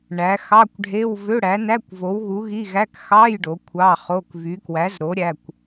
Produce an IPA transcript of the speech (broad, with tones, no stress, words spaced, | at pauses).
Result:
ɳæ˨˥ xɑ˧˥˧kʷɖʱe˧˥˧w vø˧˥˧ɽæ˨˥næ˧˥˧kʷ vo˨˥wɣu˨˥ɣi˧˥˧ɣæ˧˥˧k xɑ˧˥˧j ɖo˨˥kʷʰɑ˧˥˧ χo˧˥˧kvy˨˥ kwæ˨˥zɾo˨˥ ɾʲæ˧˥˧kʷ